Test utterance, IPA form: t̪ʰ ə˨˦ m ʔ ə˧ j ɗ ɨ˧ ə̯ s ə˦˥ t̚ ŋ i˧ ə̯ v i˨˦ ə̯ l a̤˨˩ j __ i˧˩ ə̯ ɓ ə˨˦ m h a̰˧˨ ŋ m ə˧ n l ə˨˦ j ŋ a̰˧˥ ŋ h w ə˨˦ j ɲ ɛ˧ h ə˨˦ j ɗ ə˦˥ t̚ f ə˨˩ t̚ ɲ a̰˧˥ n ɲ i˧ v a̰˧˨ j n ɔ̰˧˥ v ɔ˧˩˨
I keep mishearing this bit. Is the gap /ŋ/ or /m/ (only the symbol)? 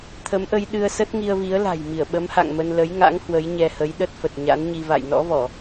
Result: m